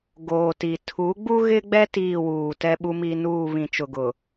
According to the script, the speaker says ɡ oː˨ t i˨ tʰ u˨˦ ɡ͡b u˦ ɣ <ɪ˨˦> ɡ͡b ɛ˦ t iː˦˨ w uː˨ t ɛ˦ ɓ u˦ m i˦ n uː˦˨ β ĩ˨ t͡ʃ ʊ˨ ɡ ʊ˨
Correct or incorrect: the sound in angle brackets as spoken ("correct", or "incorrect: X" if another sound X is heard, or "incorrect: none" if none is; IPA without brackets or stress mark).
incorrect: ɪ˦